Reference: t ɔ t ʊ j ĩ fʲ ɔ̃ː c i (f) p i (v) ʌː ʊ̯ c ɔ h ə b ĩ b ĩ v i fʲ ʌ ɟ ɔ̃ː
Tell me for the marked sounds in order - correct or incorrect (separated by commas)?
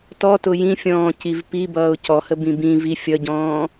incorrect, incorrect